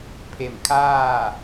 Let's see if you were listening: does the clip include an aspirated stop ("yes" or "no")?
yes